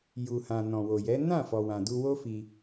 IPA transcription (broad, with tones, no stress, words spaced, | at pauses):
ju˨hã˨ nɔ̃˨wo˨jɛ˨˦ nã˦˨ fɔ˨wã˨du˧ wo˦fi˧